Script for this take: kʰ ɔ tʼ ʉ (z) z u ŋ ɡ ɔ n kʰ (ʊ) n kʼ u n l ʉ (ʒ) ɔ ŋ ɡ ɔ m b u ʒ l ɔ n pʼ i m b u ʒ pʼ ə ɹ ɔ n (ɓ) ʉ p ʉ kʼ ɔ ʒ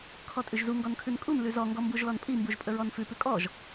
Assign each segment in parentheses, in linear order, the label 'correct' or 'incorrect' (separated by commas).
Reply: incorrect, incorrect, incorrect, incorrect